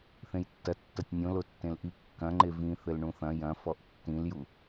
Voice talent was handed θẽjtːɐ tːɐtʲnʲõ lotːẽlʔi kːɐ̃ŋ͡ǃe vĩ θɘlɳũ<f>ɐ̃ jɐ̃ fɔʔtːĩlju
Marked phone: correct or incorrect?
incorrect: θ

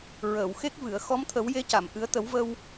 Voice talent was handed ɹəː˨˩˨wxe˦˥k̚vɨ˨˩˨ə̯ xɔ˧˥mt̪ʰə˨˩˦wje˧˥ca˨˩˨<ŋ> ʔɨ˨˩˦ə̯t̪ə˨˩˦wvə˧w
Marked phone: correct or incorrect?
incorrect: m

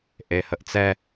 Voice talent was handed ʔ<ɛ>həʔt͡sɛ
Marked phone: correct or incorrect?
incorrect: e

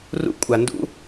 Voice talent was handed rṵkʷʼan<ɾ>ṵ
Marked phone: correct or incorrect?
incorrect: d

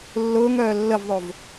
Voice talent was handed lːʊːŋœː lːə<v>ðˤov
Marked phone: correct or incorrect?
correct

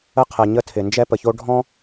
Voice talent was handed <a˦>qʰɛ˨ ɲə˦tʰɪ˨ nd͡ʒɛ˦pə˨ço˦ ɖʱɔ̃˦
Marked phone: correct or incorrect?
incorrect: ə˦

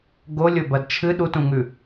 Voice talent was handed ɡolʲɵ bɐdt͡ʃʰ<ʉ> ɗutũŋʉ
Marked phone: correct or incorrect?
incorrect: ɨ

